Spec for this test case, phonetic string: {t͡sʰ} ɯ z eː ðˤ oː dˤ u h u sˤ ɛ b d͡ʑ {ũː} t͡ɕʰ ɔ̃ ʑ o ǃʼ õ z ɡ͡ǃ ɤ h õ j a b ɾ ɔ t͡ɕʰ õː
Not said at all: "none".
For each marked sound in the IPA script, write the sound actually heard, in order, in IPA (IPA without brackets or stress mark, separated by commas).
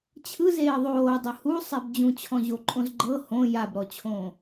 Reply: t͡ɕʰ, ũ